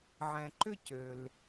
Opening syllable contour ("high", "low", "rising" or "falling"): low